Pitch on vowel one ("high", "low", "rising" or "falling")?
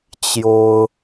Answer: high